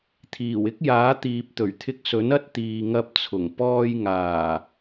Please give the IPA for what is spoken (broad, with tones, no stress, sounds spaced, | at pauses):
t̪ʰ iː˨˩ w ɪ˥ k̚ j aː˨˥ t̪ iː˨ p̚ t̪ ɵ˨˩ ɥ t̪ʰ ɪ˧ k̚ s ɵ˨˥ n ɐ˥ t̚ t̪ iː˨ ŋ ɐ˧ p̚ t͡sʰ ʊ˨˩ ŋ p ɔː˧ j ŋ aː˨˩